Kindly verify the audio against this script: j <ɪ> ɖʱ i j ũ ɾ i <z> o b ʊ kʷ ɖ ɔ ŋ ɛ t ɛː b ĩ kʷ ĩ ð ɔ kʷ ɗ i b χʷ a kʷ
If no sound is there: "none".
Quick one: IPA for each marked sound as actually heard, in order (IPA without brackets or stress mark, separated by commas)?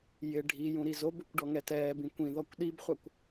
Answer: ɪ, z